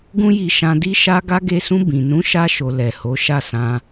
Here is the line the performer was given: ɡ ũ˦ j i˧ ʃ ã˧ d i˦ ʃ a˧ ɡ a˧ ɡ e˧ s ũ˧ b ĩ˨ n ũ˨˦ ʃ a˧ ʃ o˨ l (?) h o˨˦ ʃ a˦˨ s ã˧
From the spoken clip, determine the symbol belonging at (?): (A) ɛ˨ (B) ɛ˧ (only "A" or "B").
A